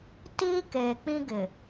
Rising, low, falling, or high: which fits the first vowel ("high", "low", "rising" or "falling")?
high